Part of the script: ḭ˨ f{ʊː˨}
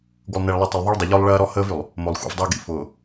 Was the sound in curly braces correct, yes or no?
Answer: yes